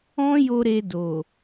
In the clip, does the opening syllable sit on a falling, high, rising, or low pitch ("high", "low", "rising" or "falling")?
high